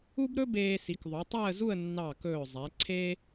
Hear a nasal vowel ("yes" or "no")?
no